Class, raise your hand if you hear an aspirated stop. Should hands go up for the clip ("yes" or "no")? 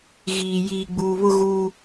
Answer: no